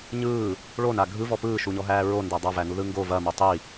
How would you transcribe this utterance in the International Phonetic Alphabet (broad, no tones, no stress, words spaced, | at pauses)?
ɲɯː | ɭona ɡʱɯvɔ pɯːʃuɲɔɦæː ɹondæ dˤavænuðɯ ŋɡo vɐmo tˤi